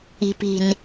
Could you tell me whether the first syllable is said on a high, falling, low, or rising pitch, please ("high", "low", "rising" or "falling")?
low